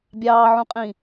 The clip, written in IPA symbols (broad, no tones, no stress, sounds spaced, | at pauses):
bʲ ɑː ʕ ũ qʼ ĩ